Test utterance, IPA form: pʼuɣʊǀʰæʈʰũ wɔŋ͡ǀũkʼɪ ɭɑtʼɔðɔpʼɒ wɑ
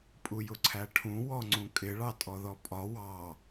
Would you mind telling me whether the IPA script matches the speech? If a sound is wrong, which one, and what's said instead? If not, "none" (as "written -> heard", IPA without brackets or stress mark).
ɣ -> j